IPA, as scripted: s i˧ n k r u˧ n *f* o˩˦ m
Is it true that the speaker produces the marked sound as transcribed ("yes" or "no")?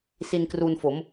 yes